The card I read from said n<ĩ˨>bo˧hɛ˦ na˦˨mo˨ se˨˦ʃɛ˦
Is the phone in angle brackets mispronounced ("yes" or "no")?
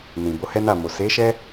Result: no